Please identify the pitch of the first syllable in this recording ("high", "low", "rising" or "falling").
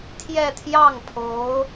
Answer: falling